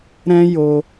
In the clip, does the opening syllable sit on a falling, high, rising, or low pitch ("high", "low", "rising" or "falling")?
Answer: high